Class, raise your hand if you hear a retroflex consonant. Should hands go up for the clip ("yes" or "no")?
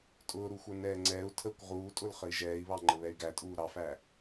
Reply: no